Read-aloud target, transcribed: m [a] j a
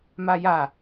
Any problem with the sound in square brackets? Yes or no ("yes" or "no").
no